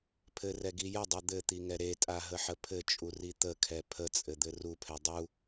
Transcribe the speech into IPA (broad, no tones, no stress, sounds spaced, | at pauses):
pʰ ɘ r ɛ ɡ i j ə dˤ ɛ d̪ ɘ t̪ i ŋ ɛ ɾ e tʼ a ɦ ə ħ ə pʰ ɘ t͡ʃʼ u r i t̪ ə kʰ ɛ pʰ ə t͡sʼ ɘ d̪ ɘ r u pʰ ɛ dˤ u